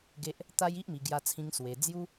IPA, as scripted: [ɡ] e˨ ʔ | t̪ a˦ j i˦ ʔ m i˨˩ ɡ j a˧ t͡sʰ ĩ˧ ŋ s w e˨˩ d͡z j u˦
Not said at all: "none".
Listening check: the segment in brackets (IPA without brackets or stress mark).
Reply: ɡ